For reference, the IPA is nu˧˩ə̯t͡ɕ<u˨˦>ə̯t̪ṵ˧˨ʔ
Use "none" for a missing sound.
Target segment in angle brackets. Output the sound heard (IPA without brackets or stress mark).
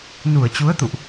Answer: u˨˦